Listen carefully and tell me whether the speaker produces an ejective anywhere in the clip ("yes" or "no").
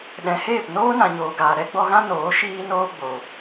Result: no